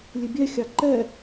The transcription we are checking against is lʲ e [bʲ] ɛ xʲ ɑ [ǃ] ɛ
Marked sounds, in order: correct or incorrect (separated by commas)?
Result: correct, correct